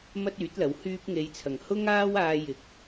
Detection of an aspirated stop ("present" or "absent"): present